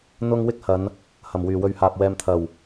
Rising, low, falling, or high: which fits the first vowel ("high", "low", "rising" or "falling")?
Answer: high